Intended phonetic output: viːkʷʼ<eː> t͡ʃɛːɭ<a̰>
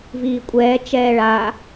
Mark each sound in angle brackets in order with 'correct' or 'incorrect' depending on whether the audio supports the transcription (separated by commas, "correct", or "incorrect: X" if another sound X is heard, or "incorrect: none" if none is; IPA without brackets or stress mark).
incorrect: ɛː, incorrect: a